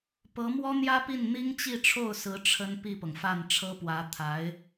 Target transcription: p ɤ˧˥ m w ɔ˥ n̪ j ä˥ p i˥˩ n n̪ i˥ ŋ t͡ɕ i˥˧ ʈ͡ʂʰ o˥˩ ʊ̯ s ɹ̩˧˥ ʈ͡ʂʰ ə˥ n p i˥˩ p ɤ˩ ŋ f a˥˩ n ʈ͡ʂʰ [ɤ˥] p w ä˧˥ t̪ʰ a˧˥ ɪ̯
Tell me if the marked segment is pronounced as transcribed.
yes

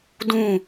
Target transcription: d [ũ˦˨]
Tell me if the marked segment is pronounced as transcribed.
yes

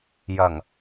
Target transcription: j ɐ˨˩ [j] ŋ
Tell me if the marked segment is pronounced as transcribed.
no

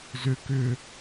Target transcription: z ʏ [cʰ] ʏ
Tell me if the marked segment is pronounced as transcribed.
no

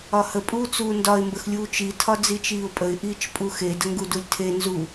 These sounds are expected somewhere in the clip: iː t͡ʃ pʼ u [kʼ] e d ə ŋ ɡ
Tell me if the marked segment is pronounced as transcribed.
no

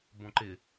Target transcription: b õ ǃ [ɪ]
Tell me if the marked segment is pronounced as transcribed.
yes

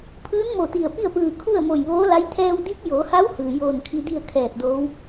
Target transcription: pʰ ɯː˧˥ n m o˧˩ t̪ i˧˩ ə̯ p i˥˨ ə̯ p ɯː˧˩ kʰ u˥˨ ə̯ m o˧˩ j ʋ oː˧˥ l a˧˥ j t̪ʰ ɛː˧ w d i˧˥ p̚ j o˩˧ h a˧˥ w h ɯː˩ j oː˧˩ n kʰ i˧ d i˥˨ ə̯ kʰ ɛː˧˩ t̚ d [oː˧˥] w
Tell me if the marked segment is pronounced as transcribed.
yes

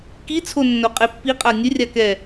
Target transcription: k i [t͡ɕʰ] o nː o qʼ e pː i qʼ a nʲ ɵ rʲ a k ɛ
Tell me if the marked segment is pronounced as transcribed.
no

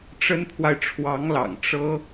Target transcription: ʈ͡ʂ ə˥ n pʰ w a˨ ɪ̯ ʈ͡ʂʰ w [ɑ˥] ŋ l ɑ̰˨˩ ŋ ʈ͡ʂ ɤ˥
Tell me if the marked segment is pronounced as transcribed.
no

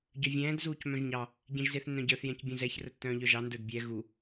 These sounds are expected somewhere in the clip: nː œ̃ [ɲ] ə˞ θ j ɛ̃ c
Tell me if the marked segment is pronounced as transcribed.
no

